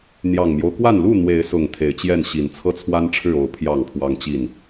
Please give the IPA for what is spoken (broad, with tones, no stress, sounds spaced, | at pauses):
n̪ j ɑ˨˩ ŋ m j o˦ ʊ̯ k w a˥˨ n l u˥˨ n̪ w e˨˦ ɪ̯ s ʊ˨˩ ŋ t̪ʰ e˨˦ ɪ̯ t͡ɕ j ɛ˥˨ n ɕ i˨˩ n t͡sʰ ɤ˦ t͡sʰ w a˦ n ʈ͡ʂʰ ɻ̩˥˨ o˥˨ ʊ̯ pʰ j ɑ˥˨ ŋ pʰ w ɑ˦ ŋ t͡ɕ i˥˨ n